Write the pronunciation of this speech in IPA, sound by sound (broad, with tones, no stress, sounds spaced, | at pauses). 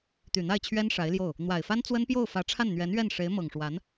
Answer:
t̪ y˨˩ n̪ a˥˩ ɪ̯ t͡ɕʰ ɥ ɛ˥ n ʂ a˧˥ ɪ̯ l j o˥˩ ʊ̯ | n̪ w a˨˩ ɪ̯ f a˥ n t͡s w ə˥ n p j o˥˩ ʊ̯ f ä˧˥ ʈ͡ʂʰ a˥˩ n n̪ ɥ ɛ˧˥ n ɥ ɛ˥˩ n ʂ e˧˥ ɪ̯ m ɤ˨˩ ŋ ʂ w a˧˥ n